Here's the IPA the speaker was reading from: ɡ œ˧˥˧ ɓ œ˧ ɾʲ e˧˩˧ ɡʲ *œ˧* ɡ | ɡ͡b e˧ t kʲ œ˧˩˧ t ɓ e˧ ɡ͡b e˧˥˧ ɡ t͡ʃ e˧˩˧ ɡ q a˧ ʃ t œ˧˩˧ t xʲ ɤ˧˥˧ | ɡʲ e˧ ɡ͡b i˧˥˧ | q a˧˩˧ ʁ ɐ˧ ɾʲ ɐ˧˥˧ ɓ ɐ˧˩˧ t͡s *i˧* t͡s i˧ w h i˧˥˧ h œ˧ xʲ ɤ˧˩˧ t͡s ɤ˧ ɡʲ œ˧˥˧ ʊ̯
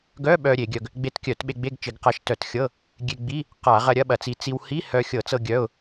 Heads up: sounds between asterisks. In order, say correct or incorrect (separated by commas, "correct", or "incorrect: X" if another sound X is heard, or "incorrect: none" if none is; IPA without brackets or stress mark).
correct, correct